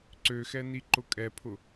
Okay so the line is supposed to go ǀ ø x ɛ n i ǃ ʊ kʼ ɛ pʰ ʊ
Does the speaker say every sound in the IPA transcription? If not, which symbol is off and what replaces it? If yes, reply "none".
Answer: none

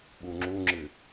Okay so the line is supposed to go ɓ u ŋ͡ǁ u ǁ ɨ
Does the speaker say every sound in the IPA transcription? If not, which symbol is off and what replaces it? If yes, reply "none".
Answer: ǁ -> ŋ͡ǁ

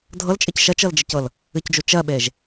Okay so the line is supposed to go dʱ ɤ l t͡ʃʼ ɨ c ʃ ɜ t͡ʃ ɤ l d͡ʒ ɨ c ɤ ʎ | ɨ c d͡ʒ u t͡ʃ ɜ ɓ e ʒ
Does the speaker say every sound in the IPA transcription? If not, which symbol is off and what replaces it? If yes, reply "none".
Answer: ʎ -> l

